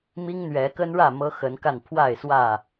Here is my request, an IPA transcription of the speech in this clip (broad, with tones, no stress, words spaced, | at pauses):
mi˦ŋn̪ɥɛ˨˦ kə˦nɻä˥˨ mɤ˦xə˨˦nka˥˨n pʰwa˥˨ɪ̯swä˥˨